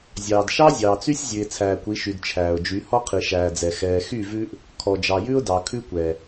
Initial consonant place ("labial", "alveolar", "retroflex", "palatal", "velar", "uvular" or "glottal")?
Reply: alveolar